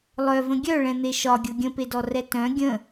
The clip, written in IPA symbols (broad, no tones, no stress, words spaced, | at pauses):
lˠœvə̃ ɡʲœɭɛ̃n̪e ʃɒɡʲɤ ɡʲə̃pedɔrɛ tœ̃ ɡʲə̃